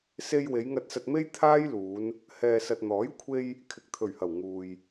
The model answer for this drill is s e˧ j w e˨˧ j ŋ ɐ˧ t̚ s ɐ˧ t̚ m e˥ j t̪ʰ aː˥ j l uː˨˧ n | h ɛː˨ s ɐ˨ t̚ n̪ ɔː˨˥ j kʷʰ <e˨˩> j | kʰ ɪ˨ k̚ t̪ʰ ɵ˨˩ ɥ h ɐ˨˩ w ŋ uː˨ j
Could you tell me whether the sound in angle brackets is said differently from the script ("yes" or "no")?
yes